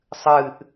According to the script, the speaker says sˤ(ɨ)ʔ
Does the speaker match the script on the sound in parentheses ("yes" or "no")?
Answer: yes